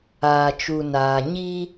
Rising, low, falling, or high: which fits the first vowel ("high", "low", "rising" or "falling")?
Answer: low